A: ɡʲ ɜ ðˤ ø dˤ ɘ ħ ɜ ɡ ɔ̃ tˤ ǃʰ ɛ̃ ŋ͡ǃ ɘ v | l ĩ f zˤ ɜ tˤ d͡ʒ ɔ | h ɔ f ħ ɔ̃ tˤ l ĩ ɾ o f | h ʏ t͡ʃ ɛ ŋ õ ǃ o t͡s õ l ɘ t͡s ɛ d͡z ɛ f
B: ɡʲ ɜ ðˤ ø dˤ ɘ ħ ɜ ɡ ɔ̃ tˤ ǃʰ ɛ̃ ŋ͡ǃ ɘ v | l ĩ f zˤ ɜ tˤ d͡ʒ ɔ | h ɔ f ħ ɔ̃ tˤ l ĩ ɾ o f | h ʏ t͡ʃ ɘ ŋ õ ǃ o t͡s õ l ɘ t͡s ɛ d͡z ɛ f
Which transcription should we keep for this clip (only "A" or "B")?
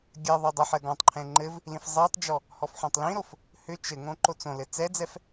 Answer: B